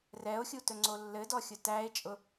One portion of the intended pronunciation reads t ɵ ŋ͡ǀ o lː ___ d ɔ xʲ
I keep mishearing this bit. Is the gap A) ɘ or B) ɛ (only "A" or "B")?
A